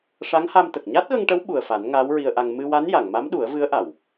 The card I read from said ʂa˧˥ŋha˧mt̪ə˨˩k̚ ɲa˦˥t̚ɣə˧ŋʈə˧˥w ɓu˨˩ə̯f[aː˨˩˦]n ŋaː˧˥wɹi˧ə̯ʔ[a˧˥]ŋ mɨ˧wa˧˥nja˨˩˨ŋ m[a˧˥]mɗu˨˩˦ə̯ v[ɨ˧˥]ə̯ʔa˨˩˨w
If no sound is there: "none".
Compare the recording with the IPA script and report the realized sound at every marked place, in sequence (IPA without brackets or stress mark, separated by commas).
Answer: a˨˩˦, a˧, a˧˥, ɨ˧˥